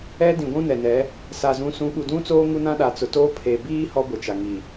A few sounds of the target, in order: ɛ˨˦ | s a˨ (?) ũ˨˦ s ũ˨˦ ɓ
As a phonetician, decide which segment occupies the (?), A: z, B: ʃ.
A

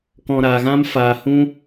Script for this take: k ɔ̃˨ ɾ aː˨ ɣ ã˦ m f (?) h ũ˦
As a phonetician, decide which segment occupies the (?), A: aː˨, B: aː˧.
A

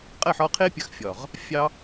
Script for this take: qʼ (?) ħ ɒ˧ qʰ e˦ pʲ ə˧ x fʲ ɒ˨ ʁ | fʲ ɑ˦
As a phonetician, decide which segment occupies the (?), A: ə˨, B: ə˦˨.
B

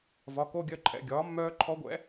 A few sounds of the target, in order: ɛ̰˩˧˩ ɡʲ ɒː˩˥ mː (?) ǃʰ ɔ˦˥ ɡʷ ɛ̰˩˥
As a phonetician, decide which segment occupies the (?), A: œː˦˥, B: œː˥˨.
A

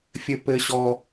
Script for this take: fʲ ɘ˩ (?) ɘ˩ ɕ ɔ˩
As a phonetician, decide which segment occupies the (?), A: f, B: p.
B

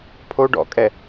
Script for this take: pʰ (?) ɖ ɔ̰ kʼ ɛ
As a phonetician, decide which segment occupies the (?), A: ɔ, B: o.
B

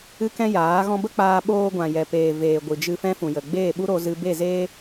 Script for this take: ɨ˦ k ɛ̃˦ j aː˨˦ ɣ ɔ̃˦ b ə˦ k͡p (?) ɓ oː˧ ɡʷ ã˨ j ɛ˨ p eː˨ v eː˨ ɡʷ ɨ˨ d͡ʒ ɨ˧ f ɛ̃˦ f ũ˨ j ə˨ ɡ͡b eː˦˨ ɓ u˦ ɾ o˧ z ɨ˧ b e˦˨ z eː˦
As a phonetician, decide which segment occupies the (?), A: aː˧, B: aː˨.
A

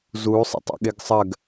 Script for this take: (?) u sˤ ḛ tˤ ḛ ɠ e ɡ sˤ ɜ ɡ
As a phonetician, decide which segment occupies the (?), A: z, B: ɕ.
A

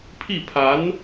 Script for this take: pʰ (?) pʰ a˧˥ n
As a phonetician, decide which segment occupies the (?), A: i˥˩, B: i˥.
A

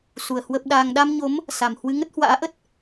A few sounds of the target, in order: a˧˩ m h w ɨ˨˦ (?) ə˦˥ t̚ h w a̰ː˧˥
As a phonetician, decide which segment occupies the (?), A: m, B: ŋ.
B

